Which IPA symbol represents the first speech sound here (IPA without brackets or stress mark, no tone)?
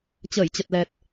t͡ɕ